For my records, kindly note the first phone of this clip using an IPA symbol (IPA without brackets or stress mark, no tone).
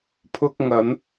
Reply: pʰ